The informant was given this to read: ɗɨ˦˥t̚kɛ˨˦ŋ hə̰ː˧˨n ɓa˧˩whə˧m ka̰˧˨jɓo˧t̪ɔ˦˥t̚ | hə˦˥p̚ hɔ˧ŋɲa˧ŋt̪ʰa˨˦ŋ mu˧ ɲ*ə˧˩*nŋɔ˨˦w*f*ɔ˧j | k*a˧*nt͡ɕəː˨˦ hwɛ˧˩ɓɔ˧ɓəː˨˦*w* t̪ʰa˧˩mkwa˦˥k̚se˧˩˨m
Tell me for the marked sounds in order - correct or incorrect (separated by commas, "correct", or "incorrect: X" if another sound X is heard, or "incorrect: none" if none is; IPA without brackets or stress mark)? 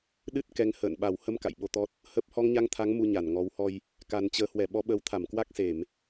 incorrect: a˧˩, incorrect: h, incorrect: a˨˩, correct